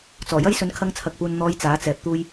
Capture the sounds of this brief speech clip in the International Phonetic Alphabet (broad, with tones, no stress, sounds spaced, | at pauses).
t͡s ɔː˨˩ j ɐ˥ j s ɵ˧ n kʰ ɐ˧ ŋ t͡sʰ ɐ˨ k̚ p uː˨ n n̪ ɔː˨˧ j t͡s aː˨˥ t͡s ɛː˨ p̚ t̪ uː˧ j